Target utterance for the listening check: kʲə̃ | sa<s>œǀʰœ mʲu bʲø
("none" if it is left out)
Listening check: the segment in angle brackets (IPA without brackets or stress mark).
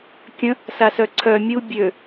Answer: s